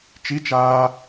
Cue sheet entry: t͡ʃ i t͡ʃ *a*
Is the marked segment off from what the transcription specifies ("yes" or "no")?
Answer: yes